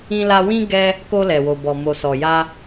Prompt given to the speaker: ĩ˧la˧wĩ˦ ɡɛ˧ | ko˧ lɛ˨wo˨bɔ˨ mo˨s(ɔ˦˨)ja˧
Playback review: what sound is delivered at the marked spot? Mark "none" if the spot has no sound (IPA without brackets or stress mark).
ɔ˨